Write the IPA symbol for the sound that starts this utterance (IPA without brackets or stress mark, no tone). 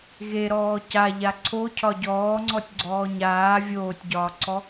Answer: ɣ